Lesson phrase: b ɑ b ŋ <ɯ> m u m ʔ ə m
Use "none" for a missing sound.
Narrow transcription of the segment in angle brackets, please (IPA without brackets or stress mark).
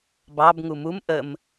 u